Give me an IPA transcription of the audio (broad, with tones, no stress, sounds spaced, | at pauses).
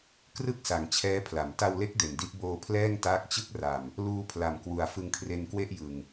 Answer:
k r ɯ˥˩ k̚ s a˨˩ ŋ t͡ɕʰ ɛː˦˥ pʰ l a˩˦ m t a˧ w l e˦˥ k̚ d e˨˩ n d i˦˥ ʔ b oː˧ pʰ l ɛː˥˩ ŋ t aː˦˥ k̚ t͡ɕ ɯ˥˩ k̚ r a˨˩ m | l uː˧ pʰ l a˨˩ m k w u˨˩ a̯ f ɯ˧ ŋ kʰ r e˧ n k w e˥˩ ʔ j ɯ˨˩ ŋ